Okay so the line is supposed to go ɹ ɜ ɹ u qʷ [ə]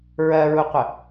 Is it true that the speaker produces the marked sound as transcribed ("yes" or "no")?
yes